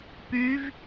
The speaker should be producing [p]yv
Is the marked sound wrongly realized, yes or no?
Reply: no